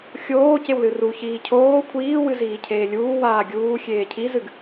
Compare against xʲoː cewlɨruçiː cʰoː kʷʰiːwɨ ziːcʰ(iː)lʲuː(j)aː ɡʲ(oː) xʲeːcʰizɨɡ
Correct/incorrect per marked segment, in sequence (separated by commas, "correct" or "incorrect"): incorrect, incorrect, incorrect